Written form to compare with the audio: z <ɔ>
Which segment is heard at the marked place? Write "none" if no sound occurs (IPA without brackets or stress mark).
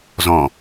ɔ̃